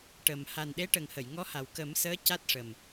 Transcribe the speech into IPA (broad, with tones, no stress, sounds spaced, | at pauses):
ʈ ə˨˩ m h a˨˩ n ɗ e˧˥ ʈ ə˨˩ ŋ h ə˨˩˨ j ŋ ɔ˧˥ h a˨˩ w k ə˨˩˦ m s əː˧˥ c a˦˥ t̚ ʂ ə˨˩ m